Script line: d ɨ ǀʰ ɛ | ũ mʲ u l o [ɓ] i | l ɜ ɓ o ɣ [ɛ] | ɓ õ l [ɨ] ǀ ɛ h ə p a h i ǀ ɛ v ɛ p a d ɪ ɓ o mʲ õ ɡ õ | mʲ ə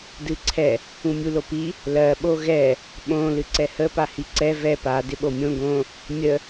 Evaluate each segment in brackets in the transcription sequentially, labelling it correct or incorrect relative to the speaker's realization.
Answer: incorrect, correct, correct

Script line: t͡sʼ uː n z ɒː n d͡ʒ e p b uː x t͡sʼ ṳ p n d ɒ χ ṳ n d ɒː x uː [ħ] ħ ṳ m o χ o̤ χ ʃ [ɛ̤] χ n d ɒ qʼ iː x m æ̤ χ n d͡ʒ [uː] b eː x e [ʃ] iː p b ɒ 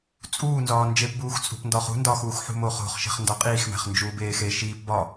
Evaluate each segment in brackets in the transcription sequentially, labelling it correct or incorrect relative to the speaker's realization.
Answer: incorrect, incorrect, correct, correct

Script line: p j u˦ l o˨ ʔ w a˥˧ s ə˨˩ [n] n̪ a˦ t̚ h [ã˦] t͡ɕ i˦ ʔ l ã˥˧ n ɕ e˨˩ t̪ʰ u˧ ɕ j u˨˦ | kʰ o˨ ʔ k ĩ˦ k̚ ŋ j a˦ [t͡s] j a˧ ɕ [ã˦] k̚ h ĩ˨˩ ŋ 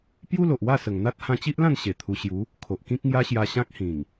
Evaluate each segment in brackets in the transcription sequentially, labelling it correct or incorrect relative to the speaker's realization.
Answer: incorrect, incorrect, incorrect, correct

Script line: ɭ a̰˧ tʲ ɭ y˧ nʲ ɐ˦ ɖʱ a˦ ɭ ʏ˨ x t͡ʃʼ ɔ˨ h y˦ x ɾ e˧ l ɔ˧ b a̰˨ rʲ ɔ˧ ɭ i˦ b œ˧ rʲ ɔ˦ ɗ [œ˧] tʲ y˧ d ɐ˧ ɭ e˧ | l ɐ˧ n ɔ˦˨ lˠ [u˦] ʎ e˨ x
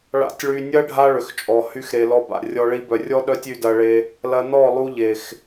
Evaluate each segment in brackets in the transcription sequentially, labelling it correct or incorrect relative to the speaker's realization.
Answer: incorrect, incorrect

